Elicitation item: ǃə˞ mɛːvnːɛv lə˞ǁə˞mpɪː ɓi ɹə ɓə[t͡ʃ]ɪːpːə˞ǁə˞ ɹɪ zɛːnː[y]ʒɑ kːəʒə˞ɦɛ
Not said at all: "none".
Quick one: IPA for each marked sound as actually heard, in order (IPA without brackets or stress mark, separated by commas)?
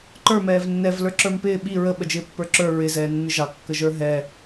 d͡ʒ, ɪ